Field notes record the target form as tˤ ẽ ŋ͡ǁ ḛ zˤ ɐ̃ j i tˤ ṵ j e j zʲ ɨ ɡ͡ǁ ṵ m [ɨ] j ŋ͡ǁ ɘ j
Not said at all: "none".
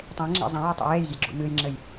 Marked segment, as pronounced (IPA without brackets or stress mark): ɨ